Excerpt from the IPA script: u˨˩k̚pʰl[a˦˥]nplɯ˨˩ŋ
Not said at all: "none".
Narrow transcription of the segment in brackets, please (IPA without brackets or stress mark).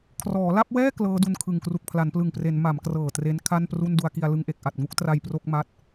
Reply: a˩˦